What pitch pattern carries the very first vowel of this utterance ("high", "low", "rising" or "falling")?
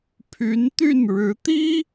rising